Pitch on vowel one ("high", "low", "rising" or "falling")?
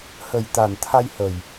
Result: low